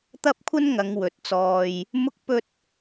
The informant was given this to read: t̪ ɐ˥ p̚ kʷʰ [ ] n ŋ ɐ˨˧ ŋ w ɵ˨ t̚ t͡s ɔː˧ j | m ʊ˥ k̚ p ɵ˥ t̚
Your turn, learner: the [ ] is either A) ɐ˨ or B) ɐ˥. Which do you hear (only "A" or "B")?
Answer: B